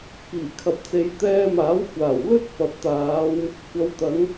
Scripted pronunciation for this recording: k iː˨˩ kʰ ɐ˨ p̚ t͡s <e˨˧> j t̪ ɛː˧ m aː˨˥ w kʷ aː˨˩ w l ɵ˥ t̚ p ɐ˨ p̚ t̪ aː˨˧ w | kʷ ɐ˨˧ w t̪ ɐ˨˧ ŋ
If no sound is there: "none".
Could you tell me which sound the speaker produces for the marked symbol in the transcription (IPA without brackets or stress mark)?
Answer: e˨˧